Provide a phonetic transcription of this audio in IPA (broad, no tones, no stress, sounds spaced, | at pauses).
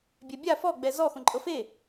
bʲ ɛ bʲ a f ɔ ɡ͡b ɛ z ɔ x õ ǃʼ ɤ f e